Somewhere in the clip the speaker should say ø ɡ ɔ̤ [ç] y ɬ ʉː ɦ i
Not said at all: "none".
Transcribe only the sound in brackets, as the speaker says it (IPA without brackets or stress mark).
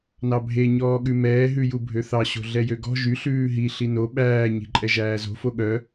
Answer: ʒ